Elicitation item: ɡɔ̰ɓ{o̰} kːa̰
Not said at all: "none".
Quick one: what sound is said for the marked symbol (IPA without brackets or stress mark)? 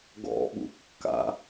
ṵ